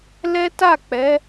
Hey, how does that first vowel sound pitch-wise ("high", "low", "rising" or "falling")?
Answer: high